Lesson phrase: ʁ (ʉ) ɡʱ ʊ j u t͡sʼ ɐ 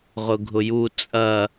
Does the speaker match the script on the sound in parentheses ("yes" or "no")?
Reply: no